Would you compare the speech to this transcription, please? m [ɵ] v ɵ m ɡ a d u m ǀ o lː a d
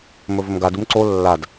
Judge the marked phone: correct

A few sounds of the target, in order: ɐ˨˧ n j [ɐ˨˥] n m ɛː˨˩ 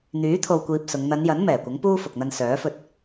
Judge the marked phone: correct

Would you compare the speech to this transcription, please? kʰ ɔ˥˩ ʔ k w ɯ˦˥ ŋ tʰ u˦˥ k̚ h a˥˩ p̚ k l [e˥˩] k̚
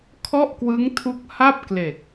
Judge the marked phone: incorrect: e˨˩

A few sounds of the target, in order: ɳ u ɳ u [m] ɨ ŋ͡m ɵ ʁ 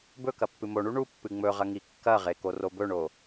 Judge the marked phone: incorrect: pː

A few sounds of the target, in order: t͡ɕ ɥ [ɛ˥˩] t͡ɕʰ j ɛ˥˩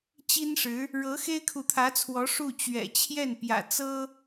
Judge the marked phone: incorrect: ɛ̰˨˩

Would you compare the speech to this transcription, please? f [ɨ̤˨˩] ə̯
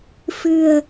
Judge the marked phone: correct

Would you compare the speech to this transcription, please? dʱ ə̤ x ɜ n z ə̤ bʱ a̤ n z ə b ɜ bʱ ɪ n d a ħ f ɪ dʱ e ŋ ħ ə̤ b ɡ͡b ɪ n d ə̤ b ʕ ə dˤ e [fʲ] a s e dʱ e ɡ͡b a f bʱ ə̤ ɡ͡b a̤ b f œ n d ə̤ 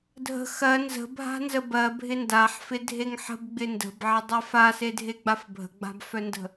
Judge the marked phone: incorrect: f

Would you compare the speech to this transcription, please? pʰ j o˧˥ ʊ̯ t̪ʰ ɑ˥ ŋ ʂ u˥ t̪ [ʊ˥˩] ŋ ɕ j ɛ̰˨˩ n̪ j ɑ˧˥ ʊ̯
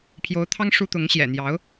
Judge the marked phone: incorrect: ʊ˧˥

